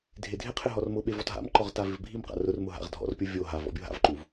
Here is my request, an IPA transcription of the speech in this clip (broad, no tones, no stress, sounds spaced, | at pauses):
dʱ e dʱ ɪ qʰ ɪ ɦ ɔ r m ʊ ɓ e v ɔ t ɦ a̰ m ǃ ɔ ʁ t a v ɪ v bʱ i m q a̰ r ʊ r m ʊ ɦ a̰ ʁ dʱ ɔ̰ r pʲ o vʲ o ɦ a v ɔ̰ bʲ o ɦ a̰ v ǃ u v